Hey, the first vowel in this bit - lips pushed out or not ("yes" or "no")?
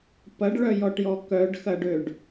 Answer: no